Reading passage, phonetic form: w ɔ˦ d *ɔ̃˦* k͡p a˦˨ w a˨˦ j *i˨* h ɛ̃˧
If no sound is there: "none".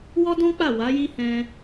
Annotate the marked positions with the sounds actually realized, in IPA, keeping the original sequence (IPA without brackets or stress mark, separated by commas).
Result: ɔ̃˦, i˦